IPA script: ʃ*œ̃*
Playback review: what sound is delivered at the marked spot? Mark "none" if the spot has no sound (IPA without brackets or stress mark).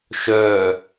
œ